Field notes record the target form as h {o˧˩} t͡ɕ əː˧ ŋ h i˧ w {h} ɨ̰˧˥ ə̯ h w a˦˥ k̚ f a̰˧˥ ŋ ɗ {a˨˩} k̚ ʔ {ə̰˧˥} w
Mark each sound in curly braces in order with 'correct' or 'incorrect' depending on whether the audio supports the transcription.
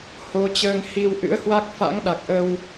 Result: incorrect, incorrect, correct, incorrect

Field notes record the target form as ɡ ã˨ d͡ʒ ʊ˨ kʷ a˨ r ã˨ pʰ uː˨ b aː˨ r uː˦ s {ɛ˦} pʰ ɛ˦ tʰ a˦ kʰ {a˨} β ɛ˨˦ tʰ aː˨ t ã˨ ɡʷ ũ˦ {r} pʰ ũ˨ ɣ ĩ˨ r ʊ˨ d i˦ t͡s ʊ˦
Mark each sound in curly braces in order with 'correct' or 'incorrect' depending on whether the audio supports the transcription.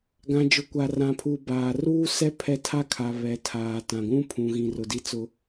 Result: correct, correct, incorrect

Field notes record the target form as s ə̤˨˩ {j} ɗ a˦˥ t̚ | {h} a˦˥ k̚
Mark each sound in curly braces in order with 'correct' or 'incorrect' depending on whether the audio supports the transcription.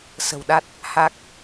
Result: incorrect, correct

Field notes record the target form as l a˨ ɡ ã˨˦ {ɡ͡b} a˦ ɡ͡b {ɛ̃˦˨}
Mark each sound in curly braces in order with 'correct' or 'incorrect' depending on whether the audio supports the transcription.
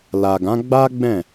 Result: correct, correct

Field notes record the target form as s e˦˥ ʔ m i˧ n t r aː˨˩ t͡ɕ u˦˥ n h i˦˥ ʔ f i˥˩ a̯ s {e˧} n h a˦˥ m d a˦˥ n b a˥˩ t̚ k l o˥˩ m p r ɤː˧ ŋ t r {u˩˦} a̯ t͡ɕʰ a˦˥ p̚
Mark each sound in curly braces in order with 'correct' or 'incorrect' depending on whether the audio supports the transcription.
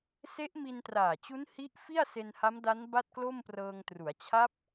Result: correct, correct

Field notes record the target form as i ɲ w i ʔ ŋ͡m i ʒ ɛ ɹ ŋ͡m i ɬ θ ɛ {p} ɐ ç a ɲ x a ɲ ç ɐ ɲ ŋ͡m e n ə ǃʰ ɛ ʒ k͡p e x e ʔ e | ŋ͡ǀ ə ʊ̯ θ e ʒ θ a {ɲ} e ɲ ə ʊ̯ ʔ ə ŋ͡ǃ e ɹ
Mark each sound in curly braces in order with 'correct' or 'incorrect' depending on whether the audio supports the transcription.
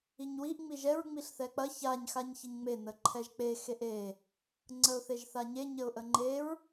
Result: incorrect, correct

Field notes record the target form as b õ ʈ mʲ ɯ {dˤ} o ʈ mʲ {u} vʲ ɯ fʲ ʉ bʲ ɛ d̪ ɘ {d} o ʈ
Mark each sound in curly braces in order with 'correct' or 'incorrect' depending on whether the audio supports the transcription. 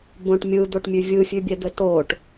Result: incorrect, incorrect, incorrect

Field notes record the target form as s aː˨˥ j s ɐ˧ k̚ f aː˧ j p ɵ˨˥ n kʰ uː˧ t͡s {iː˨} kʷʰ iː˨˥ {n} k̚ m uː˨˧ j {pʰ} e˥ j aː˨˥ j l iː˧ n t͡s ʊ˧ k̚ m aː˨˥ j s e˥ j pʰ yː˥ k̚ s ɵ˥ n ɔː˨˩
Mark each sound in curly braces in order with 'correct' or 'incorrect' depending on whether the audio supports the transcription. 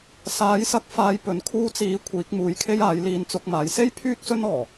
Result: incorrect, incorrect, incorrect

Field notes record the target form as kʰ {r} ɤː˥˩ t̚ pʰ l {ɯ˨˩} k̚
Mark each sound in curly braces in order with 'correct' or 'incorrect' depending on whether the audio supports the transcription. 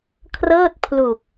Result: correct, incorrect

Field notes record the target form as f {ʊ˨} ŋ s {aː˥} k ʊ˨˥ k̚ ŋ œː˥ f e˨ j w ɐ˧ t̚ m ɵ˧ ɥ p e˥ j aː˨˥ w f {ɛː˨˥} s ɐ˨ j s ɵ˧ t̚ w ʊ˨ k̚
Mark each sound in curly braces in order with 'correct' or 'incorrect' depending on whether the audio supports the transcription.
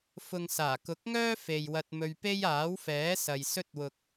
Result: correct, incorrect, correct

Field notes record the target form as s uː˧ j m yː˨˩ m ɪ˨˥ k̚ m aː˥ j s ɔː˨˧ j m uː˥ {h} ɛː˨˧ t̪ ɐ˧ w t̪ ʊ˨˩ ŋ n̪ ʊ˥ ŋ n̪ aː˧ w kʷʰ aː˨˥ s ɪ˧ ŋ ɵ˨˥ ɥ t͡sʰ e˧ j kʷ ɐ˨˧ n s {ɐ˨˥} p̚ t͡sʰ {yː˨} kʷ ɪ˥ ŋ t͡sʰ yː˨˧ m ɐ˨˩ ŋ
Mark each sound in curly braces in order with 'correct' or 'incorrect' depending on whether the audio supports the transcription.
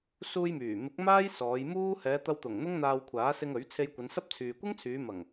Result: correct, incorrect, correct

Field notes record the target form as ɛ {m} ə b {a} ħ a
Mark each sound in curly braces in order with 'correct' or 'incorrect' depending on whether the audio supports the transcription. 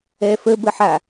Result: incorrect, incorrect

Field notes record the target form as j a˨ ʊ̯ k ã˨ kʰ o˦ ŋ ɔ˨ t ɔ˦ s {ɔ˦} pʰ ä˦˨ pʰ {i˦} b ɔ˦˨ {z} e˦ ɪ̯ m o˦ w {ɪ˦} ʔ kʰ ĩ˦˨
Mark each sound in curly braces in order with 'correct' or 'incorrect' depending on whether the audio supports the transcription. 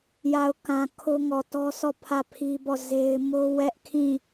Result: incorrect, correct, correct, incorrect

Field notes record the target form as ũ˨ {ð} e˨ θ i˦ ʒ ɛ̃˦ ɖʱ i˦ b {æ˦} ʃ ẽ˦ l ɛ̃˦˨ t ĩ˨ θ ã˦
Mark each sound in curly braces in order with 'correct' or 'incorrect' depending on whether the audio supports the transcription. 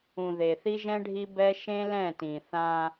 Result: correct, incorrect

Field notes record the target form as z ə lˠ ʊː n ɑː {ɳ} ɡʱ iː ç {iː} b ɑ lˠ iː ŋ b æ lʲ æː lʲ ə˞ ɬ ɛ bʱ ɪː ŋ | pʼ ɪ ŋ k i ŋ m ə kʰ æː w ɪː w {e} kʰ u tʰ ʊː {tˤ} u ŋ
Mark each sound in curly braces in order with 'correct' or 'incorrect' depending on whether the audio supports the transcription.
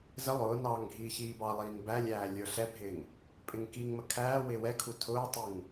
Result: incorrect, correct, incorrect, correct

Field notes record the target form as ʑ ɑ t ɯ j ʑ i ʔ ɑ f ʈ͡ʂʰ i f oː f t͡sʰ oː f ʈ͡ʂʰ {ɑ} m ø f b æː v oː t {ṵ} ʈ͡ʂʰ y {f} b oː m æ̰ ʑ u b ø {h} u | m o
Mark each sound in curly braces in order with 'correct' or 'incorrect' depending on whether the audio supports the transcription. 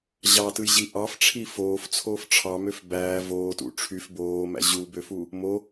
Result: correct, correct, correct, incorrect

